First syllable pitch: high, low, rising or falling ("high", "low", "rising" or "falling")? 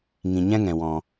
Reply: low